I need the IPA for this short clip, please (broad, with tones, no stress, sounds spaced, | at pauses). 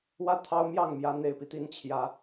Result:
w ä˥˨ t̪ʰ ɑ˦ ʊ̯ m j ɑ˥˨ ŋ m j ä˨˦ n̪ e˨˩ ɪ̯ p i˦ t̪ i˨˦ n t͡ɕʰ j ä˨˦